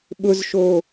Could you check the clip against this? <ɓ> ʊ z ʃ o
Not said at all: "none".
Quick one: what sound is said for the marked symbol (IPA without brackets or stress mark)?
ɓ